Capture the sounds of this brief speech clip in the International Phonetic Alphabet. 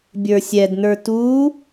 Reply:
bʲ ə˞ sʲ ɛ d n ə˞ t u

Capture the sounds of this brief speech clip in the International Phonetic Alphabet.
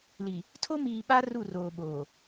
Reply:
l i˨ | tʰ o˦ m iː˨ ɓ a˦ r u˦˨ r oː˨ ɓ oː˨

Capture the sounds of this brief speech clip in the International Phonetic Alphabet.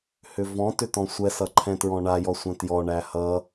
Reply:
h ʏ v ɔ̃ t ʏ t ɔ̃ sʷ ɛ s ʌ ǃʰ ɛ̃ t ɹ ɔ̃ ɳ a j ɔ sʷ ɛ̃ t j ɔ ɳ æ h ʌ

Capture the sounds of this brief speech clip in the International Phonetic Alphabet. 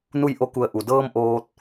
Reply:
n u˥˨ j ʔ o˥˨ k u˧˩ ə̯ ʔ u˩ d ɤː˧ m ʔ oː˧ t̚

